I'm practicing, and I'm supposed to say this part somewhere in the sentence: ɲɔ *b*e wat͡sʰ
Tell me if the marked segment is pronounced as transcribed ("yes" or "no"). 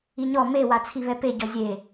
no